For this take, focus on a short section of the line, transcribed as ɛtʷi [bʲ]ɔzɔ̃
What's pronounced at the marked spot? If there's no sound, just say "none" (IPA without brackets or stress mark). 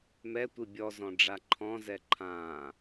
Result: bʲ